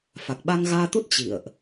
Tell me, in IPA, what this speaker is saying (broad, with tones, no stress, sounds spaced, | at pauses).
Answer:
f a˨˩ k̚ ɓ a˧ ŋ ɣ aː˧ t̪ u˦˥ t̚ t͡ɕ ḭ˧˨ ə̯ ʔ